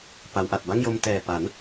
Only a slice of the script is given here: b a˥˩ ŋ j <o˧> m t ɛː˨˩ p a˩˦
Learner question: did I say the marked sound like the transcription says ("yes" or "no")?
yes